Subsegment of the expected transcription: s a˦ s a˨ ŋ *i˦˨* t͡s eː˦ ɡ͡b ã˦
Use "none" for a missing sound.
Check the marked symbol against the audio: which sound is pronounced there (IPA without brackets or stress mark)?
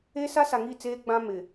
i˦˨